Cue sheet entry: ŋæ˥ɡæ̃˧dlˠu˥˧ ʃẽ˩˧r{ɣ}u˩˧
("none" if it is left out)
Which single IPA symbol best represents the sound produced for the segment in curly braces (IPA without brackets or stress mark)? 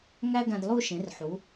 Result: ħ